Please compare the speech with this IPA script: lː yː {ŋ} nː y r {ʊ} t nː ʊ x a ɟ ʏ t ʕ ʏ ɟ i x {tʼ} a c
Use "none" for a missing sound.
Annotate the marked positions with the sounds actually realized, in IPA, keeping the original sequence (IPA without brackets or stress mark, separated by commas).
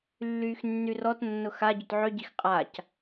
x, ɔ, qʼ